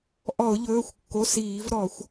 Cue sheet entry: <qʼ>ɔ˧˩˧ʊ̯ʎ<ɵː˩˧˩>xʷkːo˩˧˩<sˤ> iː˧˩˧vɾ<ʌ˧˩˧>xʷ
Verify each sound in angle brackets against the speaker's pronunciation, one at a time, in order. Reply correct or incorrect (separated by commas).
incorrect, correct, incorrect, incorrect